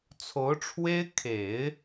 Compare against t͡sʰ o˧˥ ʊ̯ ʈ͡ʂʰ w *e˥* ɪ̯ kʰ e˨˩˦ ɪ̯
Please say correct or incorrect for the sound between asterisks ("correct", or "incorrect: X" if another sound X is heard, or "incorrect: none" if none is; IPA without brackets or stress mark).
correct